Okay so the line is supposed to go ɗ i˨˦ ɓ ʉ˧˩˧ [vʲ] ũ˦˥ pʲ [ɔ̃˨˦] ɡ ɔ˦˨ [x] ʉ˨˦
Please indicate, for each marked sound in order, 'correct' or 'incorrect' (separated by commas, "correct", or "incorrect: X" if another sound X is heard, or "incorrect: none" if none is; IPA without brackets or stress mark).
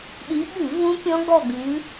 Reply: incorrect: v, incorrect: ɔ̃˦˥, incorrect: ɡ